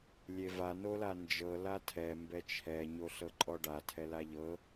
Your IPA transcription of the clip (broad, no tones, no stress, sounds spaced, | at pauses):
lʲ e v a n o l a n d͡ʒ ɤ l a tʰ ɛ m b ɛ t͡ʃʰ ɛ ɲ o ɬ ɤ ǃʼ ɔ ɖ a tʰ ɛ l a ʎ ɤ